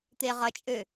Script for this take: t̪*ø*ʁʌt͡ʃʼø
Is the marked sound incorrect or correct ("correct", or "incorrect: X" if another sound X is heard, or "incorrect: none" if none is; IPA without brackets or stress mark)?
incorrect: e